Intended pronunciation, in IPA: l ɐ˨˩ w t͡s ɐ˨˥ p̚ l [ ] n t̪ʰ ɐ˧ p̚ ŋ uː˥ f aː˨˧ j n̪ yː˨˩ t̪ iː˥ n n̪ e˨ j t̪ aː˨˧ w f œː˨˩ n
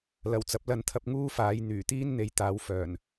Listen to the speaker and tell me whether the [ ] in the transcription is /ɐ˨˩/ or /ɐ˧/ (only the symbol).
ɐ˧